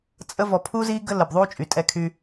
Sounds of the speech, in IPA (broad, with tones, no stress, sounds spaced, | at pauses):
t͡sʼ ə˦ v ɔ˨ pʰ uː˦ z iː˦ ɡ ə˦ l ə˨ b ðˤ uː˦ t͡ʃʼ y˨ tʼ ɛ˦ kʰ y˦